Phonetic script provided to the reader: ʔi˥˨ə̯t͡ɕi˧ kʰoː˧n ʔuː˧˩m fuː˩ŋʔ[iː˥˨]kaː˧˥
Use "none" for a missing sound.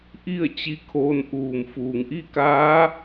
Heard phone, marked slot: i˥˨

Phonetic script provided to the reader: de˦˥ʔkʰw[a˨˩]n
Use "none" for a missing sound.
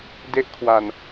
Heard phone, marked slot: a˨˩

